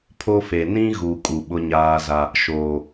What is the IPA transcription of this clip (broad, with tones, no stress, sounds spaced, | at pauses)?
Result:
pʰ o˦ f e˨ n ĩ˦ ɣ u˨ kʼ u˨ ɓ ʊ˦ ɲ aː˦ z a˦ | ʃ oː˨